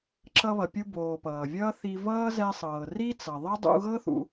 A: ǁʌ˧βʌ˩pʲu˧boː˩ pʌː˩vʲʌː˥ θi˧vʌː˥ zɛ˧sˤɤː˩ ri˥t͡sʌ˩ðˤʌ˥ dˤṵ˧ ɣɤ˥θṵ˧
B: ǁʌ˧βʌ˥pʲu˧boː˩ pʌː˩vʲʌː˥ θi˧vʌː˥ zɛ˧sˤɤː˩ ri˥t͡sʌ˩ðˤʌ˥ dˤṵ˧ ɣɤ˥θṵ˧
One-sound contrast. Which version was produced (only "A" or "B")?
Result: A